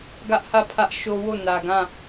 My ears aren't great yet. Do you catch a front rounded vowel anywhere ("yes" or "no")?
no